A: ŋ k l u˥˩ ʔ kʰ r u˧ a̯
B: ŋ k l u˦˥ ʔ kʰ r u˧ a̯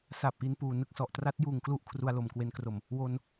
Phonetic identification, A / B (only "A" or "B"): B